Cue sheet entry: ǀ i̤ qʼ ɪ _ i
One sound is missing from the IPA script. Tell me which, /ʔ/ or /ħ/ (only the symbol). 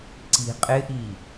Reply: ʔ